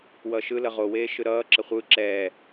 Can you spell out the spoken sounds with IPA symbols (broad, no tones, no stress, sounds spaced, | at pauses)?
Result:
w ʌː ʃ ɯ l ʌ ʁ o w eː ʃ ɯ ɾ ʌː ǁ ʌ χʷ ɯː ǁ ɛː